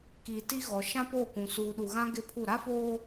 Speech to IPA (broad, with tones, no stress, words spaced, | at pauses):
kiː˨ti˦ɣɔ˨ ʃã˦po˦˨kʷũ˨ suː˨ɗu˨ɣã˦ ɡɪ˦pʰu˦˨ ɾa˦foː˦